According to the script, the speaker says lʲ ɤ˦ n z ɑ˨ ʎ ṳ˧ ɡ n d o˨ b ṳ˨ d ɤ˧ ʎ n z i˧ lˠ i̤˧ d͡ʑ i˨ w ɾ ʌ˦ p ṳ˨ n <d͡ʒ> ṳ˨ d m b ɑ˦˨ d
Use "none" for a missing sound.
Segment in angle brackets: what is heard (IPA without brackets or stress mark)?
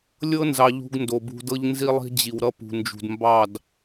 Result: d͡ʒ